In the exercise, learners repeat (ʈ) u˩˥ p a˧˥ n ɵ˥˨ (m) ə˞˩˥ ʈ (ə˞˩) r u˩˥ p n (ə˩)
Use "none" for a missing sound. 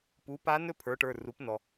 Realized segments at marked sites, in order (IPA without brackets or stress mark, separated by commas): p, pʰ, ə˞˩˧˩, ɔ˩